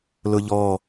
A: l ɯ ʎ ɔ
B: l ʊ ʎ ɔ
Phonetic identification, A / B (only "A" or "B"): B